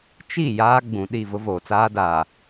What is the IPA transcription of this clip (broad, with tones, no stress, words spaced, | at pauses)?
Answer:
t͡ʃi˦˨ jaː˦ɡ͡bũ˨ɗi˦˨ vʊ˦voː˨t͡saː˦ daː˨